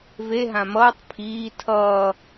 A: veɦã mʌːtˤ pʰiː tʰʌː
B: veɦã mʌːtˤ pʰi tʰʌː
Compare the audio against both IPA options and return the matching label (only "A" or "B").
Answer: A